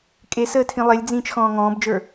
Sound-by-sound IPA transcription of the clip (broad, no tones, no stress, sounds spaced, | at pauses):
kʼ e s əː tʰ ĩ lˠ e lʲ d͡z ĩː t͡ʃ x ɔ̃ː ŋ ɔ̃ː b d͡ʒ ə˞